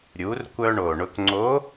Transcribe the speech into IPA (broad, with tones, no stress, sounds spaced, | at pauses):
ɾʲ u˩˧ r kʷ œ˧ ɳ o˩ ɳ ʊ˧ k ŋ͡ǀ o˧˥